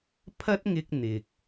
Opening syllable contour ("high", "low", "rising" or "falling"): high